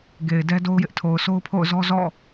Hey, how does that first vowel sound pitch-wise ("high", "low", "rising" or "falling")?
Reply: low